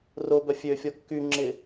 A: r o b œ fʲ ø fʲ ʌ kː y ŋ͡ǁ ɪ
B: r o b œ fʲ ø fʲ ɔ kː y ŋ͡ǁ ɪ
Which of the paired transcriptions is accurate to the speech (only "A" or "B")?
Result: B